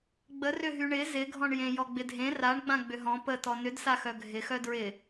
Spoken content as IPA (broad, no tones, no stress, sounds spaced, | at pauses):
ɡ͡b ə r ʏ ɦ y ɳ ɪ z ɪ ɡʱ ɔ̃ ɳ j ẽ j ɔ ɡ͡b ɪ dʱ ẽ r a ɳ ɡ͡b ã ɡ͡b ʏ ɦ ɔ̃ p ə t ɔ n ʏ d s a x œ ɡʱ ɪ x œ d ɹ ɪ